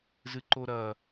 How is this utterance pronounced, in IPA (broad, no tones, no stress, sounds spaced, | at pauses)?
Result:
z ɨ ǃ o ɾ ɐ